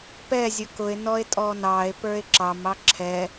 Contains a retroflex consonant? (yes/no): no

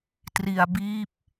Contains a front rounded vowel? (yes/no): no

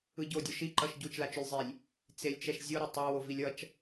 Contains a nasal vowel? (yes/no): no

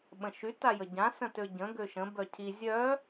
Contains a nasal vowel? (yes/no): yes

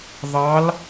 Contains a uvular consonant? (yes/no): no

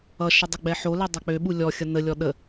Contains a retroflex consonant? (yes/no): no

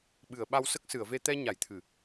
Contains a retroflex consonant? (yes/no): no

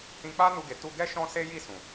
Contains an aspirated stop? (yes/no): no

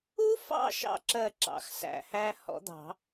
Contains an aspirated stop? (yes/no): no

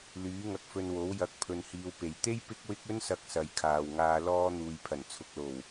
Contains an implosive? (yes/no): no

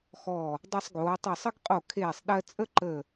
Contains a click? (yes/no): yes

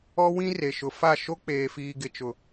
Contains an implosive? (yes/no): no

